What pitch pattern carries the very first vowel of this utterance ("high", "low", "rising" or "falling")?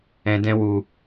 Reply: low